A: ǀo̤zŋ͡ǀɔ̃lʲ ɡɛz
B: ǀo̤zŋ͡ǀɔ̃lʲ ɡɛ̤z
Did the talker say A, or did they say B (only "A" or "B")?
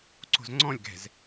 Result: B